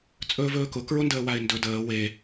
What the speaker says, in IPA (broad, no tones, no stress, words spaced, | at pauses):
t͡sʼɵːvɵːkʊ kɹʊndəːwaɪ̯ndɵ dəː we